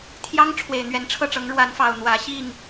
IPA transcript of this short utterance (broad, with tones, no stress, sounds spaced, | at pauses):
t̪ʰ j ɑ˦ ŋ ʈ͡ʂʰ w e˨˩ ɪ̯ n̪ ɥ ɛ˨˦ n ʈ͡ʂʰ ɤ˥˨ ʈ͡ʂ ɤ˨˦ ŋ ɻ w a˨˦ n f ɑ˨˩ ʊ̯ n̪ w ä˨˦ ɕ i˥˨ ŋ